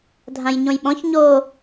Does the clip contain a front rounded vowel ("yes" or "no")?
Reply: no